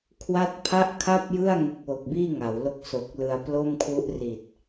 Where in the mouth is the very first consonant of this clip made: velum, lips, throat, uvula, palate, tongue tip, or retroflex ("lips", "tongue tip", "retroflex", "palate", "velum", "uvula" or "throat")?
velum